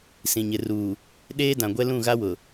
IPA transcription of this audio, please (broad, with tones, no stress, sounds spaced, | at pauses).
s ĩ˨ ɲ ɪ˨ r uː˨ | ɗ eː˦ d ã˨ ɡʷ ɛ˦ l ũ˦˨ ɣ a˦ w ʊ˨